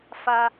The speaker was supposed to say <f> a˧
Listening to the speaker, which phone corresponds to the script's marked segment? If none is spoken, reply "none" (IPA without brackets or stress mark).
f